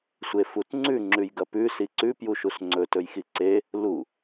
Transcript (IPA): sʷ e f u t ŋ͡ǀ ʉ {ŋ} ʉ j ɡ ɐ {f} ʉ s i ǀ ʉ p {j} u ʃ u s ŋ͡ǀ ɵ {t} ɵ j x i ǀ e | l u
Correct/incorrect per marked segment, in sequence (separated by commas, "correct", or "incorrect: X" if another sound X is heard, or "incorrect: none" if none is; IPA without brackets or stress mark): incorrect: ŋ͡ǁ, incorrect: p, correct, correct